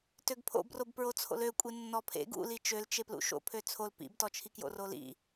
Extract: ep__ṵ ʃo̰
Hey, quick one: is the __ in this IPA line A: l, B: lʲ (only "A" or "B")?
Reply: A